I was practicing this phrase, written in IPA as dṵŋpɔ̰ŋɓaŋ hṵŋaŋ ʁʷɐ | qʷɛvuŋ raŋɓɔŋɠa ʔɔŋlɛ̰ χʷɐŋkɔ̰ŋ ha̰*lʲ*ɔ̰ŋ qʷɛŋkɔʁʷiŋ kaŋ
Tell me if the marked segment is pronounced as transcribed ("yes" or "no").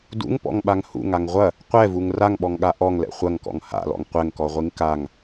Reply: no